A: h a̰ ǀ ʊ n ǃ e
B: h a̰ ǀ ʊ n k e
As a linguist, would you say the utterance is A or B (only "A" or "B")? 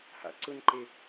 A